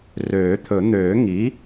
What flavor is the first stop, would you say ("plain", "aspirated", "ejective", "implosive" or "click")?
aspirated